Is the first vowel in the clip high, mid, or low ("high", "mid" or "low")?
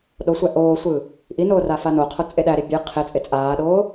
mid